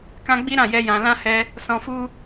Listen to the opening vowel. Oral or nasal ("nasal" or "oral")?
nasal